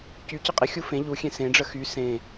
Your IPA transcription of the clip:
c y c ə qʼ ɪ xʲ u f ẽ ʎ u xʲ ẽ s ẽ ɖ͡ʐ ə x y s ẽ

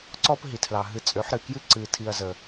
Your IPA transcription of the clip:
ǀ ɔ˦ p ɦ i˨ tʰ l ɑ˨ ɦ ɨ˧ t͡sʼ ø˨˦ ħ ɾ ɨ˨ k j ɨ˦ ǀ ɨ˧ tʰ i˧ ɐ̯ z ə˨

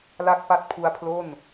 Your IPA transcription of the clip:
l a˥˩ k̚ p a˥˩ t̚ pʰ u˦˥ a̯ pʰ l o˥˩ n

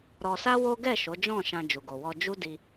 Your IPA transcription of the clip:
ɾ ɔ˧ s a˦ w o˦ ɡ ɛ˦˨ ʃ o˨˦ d͡ʒ ɔ̃˦˨ ʃ ã˧ d͡ʒ u˨ ɡ o˨ w ɔ˧ d͡ʒ u˦ d i˧

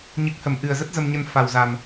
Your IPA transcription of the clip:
ɲ ɨ˨˩ k̚ h ə˧˩ m ʔ ɨ˨˩ ə̯ z ə˦˥ t̚ z ə˧ m ɲ ə˧ n f a˨˩ w z a˨˩ m

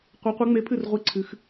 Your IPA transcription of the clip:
qʷ e˨˥ qʷ ɨ˨˥ ŋ͡m e˨˥ pʰ ɨ˥˩ r ʁʷ i˨˥ ǀʰ ɨ˩˧ x

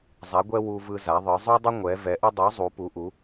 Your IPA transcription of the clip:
zˤ a˧˥ ɡʷ ɛ˥ w u˥ v ɯ˥ z a˧˥ ðˤ ɯ˧˥ zˤ u˥ dˤ ə˥ ŋʷ ɛ˧˥ v ɛ˧˥ ʔ ə˥ dˤ u˧˥ zˤ u˧˥ p u˧˥ ʔ u˧˥

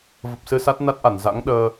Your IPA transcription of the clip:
v ə˨˩ p̚ s ɨ˧ s a˦˥ t̚ n a˦˥ t̚ ʔ a˧˩ n z a̰˧˥ ŋ ɗ əː˧

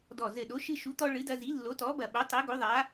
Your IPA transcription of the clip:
d ɔ˧˩ z ɘ˧˩ ɗ o˨˥ ʃ ɨ˦ ʃ u˨˥ t̪ ɔ˦ ɭ ɨ˨˥ d ɐ˦ z i˨˥ lː o˨˥ t ɔ˨˥ b ɐ˧˩ ɓ o˨˥ tˤ e˨˥ ɡ o˨˥ ðˤ a˨˥

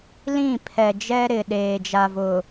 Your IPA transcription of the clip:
l ĩ˦˨ pʰ ɛ˨ d͡ʒ ɛ˦ ɾ ɪ˨ ɗ eː˨ d͡ʒ a˨ v ʊ˨

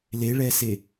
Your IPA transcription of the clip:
l e ɭ ɛ s e

